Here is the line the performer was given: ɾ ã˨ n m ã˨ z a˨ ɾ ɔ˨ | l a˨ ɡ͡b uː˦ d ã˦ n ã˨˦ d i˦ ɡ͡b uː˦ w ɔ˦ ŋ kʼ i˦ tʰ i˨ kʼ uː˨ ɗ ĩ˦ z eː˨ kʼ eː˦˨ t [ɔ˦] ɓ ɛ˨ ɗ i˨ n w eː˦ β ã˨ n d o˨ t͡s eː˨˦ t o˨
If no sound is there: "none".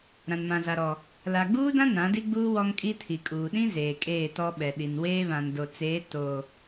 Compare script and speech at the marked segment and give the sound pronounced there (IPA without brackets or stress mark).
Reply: ɔ˦